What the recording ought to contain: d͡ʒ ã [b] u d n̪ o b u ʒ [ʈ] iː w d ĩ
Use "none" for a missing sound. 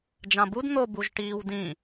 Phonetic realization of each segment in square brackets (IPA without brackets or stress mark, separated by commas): b, ʈ